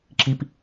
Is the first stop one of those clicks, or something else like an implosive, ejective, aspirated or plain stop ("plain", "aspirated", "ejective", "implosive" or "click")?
click